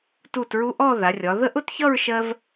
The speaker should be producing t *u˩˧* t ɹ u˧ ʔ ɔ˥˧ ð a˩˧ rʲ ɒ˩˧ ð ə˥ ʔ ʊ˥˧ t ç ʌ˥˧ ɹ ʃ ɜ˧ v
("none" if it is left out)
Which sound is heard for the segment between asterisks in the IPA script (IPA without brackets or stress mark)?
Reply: u˧˩